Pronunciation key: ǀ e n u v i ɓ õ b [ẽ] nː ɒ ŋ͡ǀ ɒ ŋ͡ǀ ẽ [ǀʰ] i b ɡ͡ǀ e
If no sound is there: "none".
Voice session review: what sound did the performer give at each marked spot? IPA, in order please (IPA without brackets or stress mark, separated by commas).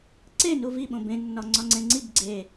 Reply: ẽ, ŋ͡ǀ